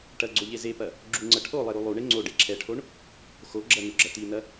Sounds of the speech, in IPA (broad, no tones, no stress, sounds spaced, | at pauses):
ʈ ɐ ɡ͡ǀ o ʎ e z e p ɐ | ɡ͡ǁ u ŋ͡ǀ ɐ ʈʰ o lˠ e ɾ u lˠ u ɳ e ŋ͡ǀ o ɖ e ǁʰ ɛ ʈʰ o ɳ | x o ɡ͡ǁ ɐ n u ɡ͡ǁ ɐ t̪ i n ɐ